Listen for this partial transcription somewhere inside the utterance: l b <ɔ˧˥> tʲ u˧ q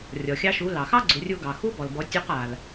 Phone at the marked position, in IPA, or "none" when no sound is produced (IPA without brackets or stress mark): ɔ˩˧